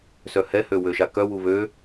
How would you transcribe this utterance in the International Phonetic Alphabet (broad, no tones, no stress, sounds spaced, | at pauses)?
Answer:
s œ h ɛ h ø w ø ʃ a k œ w u β ø